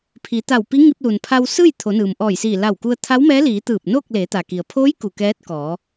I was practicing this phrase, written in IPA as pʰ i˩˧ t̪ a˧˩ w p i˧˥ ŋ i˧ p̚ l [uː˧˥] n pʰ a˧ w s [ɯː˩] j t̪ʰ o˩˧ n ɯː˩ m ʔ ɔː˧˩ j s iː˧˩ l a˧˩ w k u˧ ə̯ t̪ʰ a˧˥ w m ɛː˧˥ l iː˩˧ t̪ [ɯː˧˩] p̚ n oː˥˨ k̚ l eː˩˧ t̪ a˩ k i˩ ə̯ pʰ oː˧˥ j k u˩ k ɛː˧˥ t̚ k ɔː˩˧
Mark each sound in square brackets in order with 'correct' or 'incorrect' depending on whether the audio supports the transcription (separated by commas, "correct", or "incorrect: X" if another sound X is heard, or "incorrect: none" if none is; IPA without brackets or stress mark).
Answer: incorrect: uː˩, incorrect: ɯː˥˨, correct